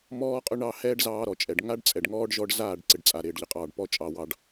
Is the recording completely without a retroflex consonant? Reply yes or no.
no